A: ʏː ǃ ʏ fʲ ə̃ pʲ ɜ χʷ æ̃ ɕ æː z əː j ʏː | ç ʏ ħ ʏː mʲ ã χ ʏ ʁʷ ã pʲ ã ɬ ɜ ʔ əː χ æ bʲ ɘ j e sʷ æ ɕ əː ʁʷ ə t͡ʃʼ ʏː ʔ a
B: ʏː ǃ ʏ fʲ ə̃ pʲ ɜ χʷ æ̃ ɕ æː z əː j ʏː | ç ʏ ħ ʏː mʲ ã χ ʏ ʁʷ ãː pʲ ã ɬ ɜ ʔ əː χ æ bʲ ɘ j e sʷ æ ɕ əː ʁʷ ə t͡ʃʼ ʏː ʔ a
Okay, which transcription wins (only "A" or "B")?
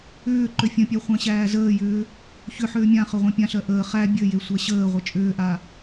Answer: A